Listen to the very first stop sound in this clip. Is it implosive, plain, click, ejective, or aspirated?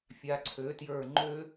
click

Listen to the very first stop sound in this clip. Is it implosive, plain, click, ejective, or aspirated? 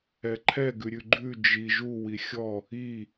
click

